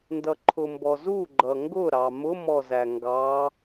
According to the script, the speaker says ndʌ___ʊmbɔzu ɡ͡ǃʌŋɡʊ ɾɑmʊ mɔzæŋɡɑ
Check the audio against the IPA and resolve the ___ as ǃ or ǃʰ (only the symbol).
ǃʰ